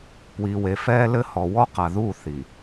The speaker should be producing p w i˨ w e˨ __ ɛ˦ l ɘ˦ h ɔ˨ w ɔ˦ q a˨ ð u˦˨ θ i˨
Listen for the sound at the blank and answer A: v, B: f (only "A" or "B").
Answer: B